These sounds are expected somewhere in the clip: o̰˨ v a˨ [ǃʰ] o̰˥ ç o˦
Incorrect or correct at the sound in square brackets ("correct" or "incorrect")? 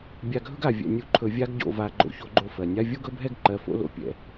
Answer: incorrect